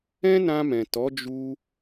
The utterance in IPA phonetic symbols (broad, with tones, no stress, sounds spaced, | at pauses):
ɛ̃˦ n ã˧ m ɛ̃˨ t ɔ˨˦ d͡ʒ u˧